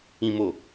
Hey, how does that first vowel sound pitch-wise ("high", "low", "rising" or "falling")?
low